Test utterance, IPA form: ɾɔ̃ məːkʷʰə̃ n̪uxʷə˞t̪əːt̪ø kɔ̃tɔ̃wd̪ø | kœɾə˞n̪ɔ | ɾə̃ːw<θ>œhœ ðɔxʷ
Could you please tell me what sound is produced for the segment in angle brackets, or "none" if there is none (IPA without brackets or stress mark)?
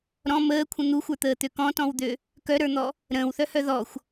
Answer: θ